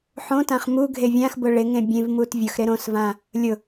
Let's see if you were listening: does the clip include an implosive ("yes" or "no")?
no